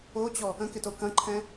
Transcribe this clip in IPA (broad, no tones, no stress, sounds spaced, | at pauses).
o t͡ɕ ɔ | ə̃ k ɪ t o k ɐ̃ ǃʰ ɛ̃